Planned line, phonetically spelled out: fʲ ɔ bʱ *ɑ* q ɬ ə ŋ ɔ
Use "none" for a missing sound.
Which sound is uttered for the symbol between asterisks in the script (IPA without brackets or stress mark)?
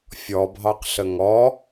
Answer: ɑ